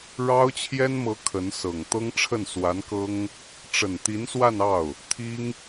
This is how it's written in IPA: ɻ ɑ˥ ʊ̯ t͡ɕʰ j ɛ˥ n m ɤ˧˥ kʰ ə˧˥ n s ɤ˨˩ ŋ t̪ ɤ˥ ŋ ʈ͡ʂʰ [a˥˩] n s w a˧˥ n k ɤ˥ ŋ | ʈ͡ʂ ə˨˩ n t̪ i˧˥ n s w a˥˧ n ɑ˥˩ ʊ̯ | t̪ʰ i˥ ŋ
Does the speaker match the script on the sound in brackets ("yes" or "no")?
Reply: no